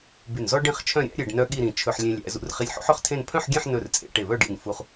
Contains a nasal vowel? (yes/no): yes